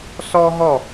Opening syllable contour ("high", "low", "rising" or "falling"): high